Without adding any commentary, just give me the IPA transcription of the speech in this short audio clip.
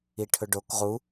i ʈʰ ɵ ɖ o k ʁ u

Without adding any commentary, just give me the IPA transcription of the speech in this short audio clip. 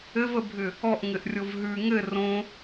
ɘ v ə bʱ ʏ | ɔ ʔ ŋ ɘ ʔ rʲ o v ɦ ʉ ŋ ɘ r õ

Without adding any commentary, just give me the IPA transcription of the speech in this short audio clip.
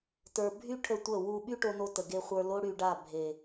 t ə˞˨ bʱ y˦ ʈʰ ə˦˨ tʷ ə˦˨ w u˧ ɓ y˦ ʈ o˧ n o˧ t ə˨ ɡ e˧ χʷ ə˞˧ l o˦ ɽ y˧ ɖ a˦˨ bʱ e˨

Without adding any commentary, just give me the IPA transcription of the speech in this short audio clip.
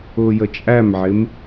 ʊː j ə t͡ʃʼ æ m ʕ ɪ m

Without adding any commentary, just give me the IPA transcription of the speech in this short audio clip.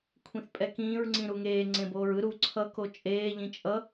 kʷʰ ĩ θ pʼ ɛ k ĩː ɹ ŋ͡ǀ ĩ ɾ u ŋ eː ŋ͡ǀ ẽ b oː ɹ ɯ ɾ u ǀʰ ʌ k o t͡ʃʼ eː ʎ ĩ t͡ʃʼ ʌ

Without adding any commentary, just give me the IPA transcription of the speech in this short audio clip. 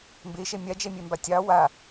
m b e ʃ ɛ mʲ a d͡ʒ ɛ mʲ ɛ m b a tʲ ɑ w a

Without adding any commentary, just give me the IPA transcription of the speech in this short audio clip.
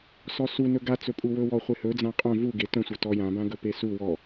s ɔ s u n ɵ ɡ a t͡s ɵ pʼ u w ɵ w ɔ χʷ e h ɵ d͡z ã qʼ œ̃ v u ɡ e t œ̃ sʷ œ t ɔ j ã b ã ɡ ɵ p e s u w ɔ

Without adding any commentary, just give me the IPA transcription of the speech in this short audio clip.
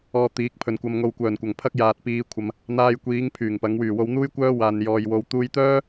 ɔː˧ t̪ iː˨˥ k̚ pʰ ɵ˨ n kʷ ɐ˧ m ŋ o˨ w kʷ œː˨˩ n kʷ ɐ˨˩ ŋ pʰ ɐ˥ k̚ j aː˨ t̚ p iː˨˧ kʷʰ ɐ˨ m | n̪ aː˧ j kʷ iː˨˧ ŋ pʰ yː˨˩ ŋ p ɐ˨˧ ŋ w yː˨˩ w o˧ w n̪ uː˥ j kʷ œː˥ w aː˨ n j ɔː˨ j w o˨˧ w t̪ uː˧ j t̪ œː˥

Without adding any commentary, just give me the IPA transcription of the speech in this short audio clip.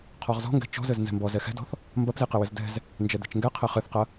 qʰ ɔ ʁ z ɔ̤ ŋ ɡ ɛ̤ t͡ʃ ɔ̤ z ɘ z n z ɛ̤ m b ɔ z ɛ x ɛ̤ d ɔ̤ θ | m b ɐ p z i q ɘ w ɘ z d ɛ̤ z | n d͡ʒ ɛ d̪ ɛ̤ t͡ʃ ŋ ɡ ɛ qʰ ɘ χ ɘ θ q ɐ

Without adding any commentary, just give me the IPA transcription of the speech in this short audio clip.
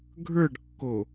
ɡʱ ə˞ ɖ kː o

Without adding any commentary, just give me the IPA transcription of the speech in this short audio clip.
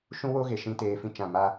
ʃ ũ˦ w o˦ ɣ e˨ ʃ ĩ˧ t eː˦ f ĩ˦ t͡ʃ ã˦˨ m a˦

